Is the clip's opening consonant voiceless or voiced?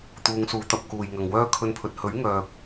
voiceless